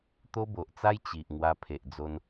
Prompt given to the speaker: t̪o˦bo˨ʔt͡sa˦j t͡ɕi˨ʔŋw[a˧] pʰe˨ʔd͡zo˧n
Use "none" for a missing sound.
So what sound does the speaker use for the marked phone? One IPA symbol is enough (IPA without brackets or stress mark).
a˧